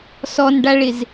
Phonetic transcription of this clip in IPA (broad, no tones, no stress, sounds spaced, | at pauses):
s ɔ n ɖ a ɭ ɪ z